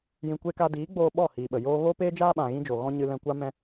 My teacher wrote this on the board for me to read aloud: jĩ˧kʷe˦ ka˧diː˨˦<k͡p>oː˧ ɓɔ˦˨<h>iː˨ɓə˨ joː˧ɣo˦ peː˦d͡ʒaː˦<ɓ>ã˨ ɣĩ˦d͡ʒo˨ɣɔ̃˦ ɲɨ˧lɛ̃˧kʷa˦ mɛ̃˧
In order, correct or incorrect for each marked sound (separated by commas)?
incorrect, correct, correct